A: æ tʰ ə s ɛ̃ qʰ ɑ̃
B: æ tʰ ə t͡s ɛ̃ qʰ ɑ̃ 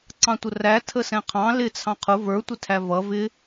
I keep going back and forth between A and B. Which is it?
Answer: A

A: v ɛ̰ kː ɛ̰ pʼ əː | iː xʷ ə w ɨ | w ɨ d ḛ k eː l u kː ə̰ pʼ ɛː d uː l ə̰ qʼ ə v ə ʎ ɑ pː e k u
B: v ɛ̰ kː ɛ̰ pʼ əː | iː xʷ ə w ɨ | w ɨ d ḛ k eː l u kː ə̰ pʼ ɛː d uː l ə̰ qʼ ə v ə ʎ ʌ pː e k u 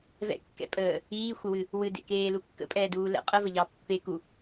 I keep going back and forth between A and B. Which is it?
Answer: A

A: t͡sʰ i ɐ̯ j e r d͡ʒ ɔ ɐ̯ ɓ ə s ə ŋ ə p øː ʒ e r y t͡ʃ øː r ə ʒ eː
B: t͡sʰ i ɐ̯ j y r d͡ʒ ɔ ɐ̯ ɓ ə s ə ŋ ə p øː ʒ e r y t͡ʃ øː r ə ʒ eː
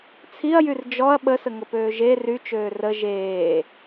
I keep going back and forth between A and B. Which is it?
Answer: B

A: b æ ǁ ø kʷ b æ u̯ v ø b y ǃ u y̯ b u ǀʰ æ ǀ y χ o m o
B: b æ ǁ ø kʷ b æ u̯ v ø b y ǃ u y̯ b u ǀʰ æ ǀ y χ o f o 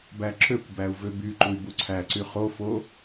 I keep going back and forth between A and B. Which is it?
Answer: B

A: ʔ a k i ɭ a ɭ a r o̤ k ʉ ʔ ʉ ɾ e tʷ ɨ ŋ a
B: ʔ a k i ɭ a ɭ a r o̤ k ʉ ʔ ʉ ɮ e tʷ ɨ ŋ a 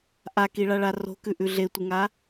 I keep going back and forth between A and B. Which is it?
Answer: B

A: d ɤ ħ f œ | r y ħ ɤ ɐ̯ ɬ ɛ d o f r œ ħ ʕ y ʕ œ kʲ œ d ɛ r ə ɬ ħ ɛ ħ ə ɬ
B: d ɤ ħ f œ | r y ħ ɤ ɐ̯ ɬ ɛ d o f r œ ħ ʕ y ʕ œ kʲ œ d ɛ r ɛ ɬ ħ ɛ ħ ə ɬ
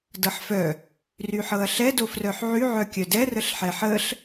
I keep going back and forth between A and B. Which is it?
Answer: A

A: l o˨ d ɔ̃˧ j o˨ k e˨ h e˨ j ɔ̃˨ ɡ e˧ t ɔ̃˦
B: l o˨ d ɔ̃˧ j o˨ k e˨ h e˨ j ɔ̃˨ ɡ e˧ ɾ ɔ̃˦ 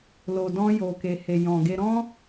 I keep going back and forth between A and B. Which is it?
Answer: B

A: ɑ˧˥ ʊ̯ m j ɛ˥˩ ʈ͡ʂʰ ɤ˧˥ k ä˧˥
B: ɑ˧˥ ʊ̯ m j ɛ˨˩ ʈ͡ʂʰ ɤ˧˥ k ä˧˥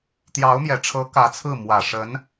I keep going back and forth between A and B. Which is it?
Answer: B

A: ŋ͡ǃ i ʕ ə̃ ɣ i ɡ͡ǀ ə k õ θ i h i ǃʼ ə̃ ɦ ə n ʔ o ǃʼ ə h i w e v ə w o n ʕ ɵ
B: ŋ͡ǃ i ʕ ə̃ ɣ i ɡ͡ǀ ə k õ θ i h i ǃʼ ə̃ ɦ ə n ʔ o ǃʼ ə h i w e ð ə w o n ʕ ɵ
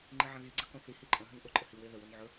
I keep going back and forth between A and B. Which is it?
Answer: B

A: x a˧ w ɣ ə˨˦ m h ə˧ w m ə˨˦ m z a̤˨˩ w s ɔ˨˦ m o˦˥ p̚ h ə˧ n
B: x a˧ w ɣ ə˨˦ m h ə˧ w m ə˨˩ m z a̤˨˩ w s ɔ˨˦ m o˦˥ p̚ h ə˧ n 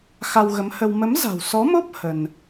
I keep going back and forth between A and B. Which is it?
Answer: A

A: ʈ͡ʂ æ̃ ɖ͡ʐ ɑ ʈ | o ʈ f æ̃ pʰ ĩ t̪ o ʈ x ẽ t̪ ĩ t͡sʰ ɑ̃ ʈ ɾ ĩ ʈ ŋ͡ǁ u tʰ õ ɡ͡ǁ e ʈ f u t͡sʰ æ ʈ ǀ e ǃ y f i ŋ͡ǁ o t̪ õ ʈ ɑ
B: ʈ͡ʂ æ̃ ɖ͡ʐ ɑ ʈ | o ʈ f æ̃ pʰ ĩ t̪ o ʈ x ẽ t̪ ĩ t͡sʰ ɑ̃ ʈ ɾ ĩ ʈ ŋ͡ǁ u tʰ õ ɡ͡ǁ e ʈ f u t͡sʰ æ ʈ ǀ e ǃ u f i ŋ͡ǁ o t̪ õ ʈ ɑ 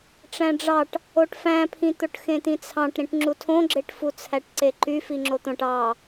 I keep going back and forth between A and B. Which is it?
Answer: A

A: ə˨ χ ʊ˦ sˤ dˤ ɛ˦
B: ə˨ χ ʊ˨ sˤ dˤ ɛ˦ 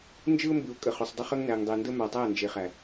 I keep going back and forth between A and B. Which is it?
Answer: B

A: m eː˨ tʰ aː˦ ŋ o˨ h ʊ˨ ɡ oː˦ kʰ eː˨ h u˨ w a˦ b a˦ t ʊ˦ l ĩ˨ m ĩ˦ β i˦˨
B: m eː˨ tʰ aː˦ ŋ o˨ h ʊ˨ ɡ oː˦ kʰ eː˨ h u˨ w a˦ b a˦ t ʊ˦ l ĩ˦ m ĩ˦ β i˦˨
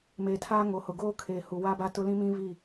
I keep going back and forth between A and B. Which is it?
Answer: B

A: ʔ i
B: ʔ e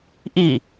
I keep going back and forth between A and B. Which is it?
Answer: A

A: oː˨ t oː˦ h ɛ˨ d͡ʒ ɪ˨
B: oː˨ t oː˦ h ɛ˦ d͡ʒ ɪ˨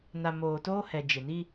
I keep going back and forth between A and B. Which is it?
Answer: A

